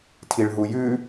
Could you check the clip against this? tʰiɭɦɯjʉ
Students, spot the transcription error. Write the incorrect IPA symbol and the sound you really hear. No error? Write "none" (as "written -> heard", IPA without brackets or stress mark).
ɯ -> u